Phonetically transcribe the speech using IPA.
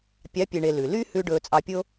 pʲ ɑ˨˦ pʲ e˨ ɳ e˨ l ʉ˨ l y˦ h ʉ˧ ɖ ɵː˧ t͡sʼ ɑ˧ pʲ o˦

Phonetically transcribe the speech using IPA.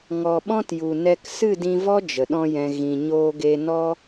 ŋ ɔ˨ ɓ ɔ̃˦ t j u˨ n ɛ˧ k s ɨ˦˨ d ĩ˧ v ɔ˦ d͡ʒ ə˨ ɗ ɔ̃˦ j ɛ̃˧ ɣ ĩ˨ ɲ oː˧ ɡ e˧ n ɔ˦

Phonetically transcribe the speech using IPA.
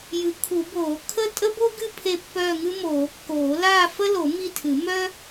j ɨ˨˩˦ kʰ u˨˩˦ b oː˨˩˦ kʰ ə˥˧ tʼ ə˥ b o˥ ɡ ɨ˥˧ pʰ e˥˧ pː œː˥˧ ŋ ɨ˥ m oː˨˩˦ kː oː˨˩˦ l aː˥˧ f ə˥ l o˨˩˦ m i˥˧ tʰ ɨ˨˩˦ m œ˥

